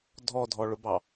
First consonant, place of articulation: alveolar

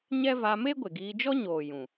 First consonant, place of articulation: palatal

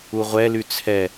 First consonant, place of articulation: uvular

